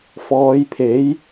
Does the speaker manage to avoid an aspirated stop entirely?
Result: no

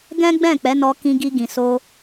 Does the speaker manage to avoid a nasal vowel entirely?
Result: no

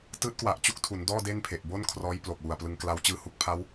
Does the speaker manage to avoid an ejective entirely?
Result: yes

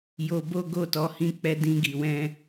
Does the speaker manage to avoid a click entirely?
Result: yes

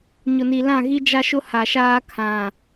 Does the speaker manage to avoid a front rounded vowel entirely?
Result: yes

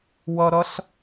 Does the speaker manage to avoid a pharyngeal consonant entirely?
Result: yes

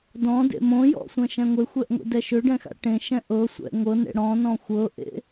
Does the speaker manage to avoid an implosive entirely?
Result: yes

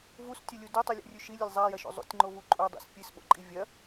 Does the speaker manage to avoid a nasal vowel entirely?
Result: yes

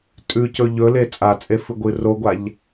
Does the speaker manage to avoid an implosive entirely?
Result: yes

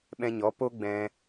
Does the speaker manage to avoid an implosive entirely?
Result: no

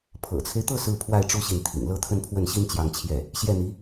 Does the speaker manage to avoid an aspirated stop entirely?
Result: no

